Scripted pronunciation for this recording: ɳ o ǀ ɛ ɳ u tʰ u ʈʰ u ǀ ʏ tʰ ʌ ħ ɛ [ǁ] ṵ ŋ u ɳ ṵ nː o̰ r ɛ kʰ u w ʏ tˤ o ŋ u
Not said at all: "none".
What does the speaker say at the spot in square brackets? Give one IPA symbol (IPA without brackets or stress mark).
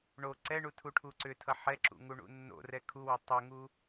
ǁ